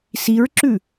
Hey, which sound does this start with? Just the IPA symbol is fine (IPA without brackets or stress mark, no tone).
s